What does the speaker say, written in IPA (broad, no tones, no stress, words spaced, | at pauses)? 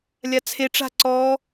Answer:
lʲat͡sʰeʈ͡ʂa̤ ǀɔ